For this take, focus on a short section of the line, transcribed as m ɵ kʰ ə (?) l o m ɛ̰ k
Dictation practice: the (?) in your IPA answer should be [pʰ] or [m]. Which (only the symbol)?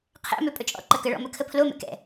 pʰ